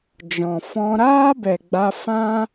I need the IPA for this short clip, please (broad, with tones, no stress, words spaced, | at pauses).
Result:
d͡ʒɔ̃˨fɔ̃˧ ɾaː˦bɛ˨ɡ͡ba˧ fã˦